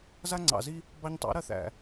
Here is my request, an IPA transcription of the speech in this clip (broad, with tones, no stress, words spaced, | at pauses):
za˦ŋ͡ǀɑ̰˨zi˦ | bɑ˧ɲtˤɑ̰˨˦ ɾɐ˧θæ̰˨